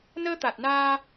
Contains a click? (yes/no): no